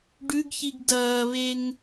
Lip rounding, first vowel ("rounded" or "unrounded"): rounded